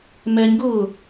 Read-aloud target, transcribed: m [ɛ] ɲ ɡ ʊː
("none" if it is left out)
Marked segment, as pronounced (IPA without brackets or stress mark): ɛ